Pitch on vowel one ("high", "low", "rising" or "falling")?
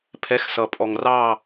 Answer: rising